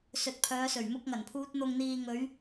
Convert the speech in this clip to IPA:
s ɵ˨ t̚ pʰ œː˨˧ s ɵ˨˩ ɥ m ʊ˧ k̚ ŋ ɐ˨˩ n pʰ uː˧ t̚ n̪ ʊ˨ ŋ n̪ iː˨ ŋ ɵ˨˧ ɥ

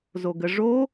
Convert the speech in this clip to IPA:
z o ɡ ə ʐ o

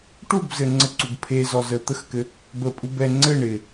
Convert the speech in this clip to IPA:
ʈ u b z ɘ ŋ͡ǀ ə ǀ u ɡ pʰ e z ɔ z ə t̪ ə x k ɘ | b ə pʼ u b ɛ ŋ͡ǀ ɘ ɳ ɪ

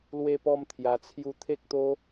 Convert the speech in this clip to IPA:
l w e˦ p ɔ˦ m t̪ʰ j a˧ t͡sʰ j u˦ t̪ʰ e˦ k̚ t̪ o˦

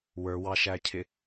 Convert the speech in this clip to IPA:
w ə˞ w ɑ ʃ æ cʰ ɪ

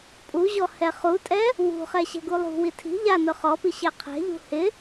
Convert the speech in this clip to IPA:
pʼ u ʑ ɔ h ɛ χ u tʼ ɛ | w ṳ χ ɛ ɕ ɛ̤ ɡ u lˠ ṳ w i tʰ i̤ ʎ a n ʊ χ ɔ p i ɕ e qʰ ɛ̤ ʎ ṳ h ɪ

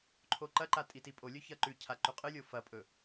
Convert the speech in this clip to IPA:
ǃʰ o ǃ ɐ ǃ a tʼ i t i pʼ o lʲ ɵ ç ɐ ǃ ʉ cʰ a ǃ ʉ qʼ ɨ lʲ o f ɐ pʼ ɵ

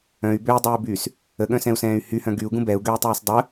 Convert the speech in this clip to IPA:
œ̃ y̯ b ø i̯ dˤ yː b yː s | ə ɠ œ̃ s ɛ̃ u̯ s ɛ̃ː y̯ h y h œ̃ ɡ y u̯ ɡ ũ b ɛ u̯ ɡ ø y̯ tˤ yː s dˤ ə

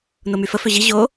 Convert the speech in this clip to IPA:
n o m y f ə f ø ʑ i ʑ o

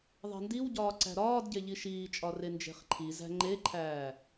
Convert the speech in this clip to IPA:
ðˤ e̤ n d i w ɟ ɒː ǀ æ̤ ɾ ɒː d ɟ e ʎ i ʃ iː t͡ʃʼ ɒ r e n d͡ʒ e̤ χ ǃʰ i z æ̤ ŋ͡ǃ e ǃʰ æː

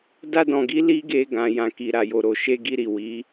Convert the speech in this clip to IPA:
d a˧ d ɔ̃˨ ɡ i˨˦ l i˦ ɡ e˧ ɡ ã˨ j ã˨ k i˨ ɾ a˨ j o˨ ɾ o˨ ʃ e˧ ɡ i˧ ɾ i˨ w i˨˦

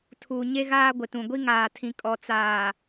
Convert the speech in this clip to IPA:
tʰ u˨ ɲ e˦ ɣ aː˦ ɡʷ ɪ˨ t ũ˨ ɡʷ i˦ ŋ aː˨ tʰ ĩ˨ kʼ ɔ˨ t͡s aː˨

